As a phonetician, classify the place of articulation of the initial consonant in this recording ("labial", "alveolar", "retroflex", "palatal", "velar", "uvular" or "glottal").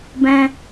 labial